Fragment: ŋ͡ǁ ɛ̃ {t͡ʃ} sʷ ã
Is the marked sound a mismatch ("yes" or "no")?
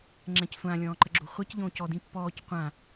yes